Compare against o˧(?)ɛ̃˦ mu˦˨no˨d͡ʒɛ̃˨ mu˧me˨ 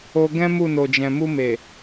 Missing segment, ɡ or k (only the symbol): ɡ